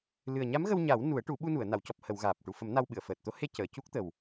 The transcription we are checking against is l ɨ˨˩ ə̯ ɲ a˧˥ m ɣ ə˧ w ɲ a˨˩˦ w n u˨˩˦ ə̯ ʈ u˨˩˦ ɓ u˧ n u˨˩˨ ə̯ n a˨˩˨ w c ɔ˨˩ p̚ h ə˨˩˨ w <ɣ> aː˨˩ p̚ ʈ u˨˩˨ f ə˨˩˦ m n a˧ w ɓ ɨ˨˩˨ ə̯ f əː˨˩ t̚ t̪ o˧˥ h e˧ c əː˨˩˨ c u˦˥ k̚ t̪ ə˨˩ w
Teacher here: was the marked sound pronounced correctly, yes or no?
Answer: yes